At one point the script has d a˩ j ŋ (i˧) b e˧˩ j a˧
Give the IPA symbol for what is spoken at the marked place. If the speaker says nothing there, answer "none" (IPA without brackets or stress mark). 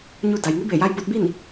i˧˥